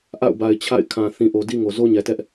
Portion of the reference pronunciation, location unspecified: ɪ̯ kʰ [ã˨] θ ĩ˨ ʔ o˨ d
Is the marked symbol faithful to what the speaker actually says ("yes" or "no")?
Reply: yes